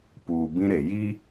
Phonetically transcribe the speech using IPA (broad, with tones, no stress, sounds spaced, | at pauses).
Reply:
p uː˨ b ĩ˦ ɾ e˨ j i˦